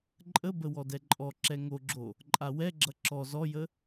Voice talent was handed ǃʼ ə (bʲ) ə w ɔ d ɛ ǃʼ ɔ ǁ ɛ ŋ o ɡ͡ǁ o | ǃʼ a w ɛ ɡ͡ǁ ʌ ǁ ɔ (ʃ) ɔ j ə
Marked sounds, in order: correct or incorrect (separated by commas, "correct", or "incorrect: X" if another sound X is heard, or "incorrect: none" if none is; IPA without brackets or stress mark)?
incorrect: b, incorrect: z